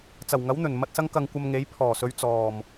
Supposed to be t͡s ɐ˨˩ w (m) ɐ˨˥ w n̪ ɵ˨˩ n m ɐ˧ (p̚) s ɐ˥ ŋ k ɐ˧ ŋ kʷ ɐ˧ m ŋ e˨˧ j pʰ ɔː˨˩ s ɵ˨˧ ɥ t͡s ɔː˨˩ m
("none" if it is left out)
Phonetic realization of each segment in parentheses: ŋ, t̚

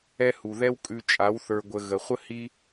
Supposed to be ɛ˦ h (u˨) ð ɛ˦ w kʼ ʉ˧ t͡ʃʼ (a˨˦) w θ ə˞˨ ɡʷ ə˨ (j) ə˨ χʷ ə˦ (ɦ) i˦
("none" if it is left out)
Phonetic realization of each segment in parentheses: u˨, a˨˦, ɣ, h

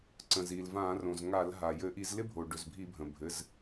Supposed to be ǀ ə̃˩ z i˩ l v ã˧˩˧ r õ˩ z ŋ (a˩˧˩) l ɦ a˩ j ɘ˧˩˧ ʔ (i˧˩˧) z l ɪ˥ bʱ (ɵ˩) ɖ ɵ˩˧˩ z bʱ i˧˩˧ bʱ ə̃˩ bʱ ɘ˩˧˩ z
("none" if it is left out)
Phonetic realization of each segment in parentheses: a˧˩˧, i˧˩˧, o˩

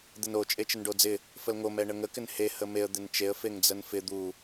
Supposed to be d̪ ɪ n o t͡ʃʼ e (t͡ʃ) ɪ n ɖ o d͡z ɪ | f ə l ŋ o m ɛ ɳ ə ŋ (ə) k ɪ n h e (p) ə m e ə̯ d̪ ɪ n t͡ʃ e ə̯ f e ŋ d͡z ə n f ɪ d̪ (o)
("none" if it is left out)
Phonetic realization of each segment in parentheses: t͡ʃ, ə, h, u

